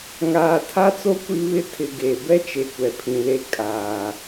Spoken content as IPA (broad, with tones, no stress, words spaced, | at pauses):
ŋaː˨tʰa˦t͡so˦ kʷi˦βɪ˦ tʰɪ˨ ɡe˨ bɛ˦t͡ʃe˨ kʷɛ˨pʰĩ˨le˦ kʼaː˨